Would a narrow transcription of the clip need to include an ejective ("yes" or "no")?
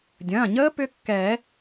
no